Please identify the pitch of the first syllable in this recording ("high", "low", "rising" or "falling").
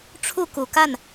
falling